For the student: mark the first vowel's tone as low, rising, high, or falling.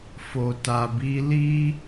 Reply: low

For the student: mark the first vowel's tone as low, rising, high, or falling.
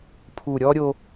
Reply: low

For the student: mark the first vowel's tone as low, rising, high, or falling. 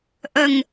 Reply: low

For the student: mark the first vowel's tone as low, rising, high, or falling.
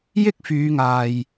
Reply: high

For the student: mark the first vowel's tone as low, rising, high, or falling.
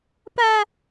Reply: high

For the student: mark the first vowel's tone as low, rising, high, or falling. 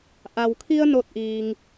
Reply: low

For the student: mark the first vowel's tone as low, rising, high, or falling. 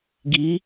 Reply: rising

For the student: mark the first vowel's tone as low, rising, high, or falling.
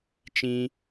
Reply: high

